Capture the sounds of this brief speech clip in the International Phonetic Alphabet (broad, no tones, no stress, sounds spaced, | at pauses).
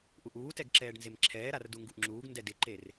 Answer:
ʔ u ʔ uː t ɛ ɡ ǁ ɛː ɖ n z e m ǁʰ ɛː ɾ a r d u ŋ ɡ u ʔ ŋ͡ǁ uː ɡ n d ɛ d ɪ ǃ e r